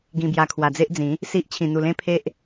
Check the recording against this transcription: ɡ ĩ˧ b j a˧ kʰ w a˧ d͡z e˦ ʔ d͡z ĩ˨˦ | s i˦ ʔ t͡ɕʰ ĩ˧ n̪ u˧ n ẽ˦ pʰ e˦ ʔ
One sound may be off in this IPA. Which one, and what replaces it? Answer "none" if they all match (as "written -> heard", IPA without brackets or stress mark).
n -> l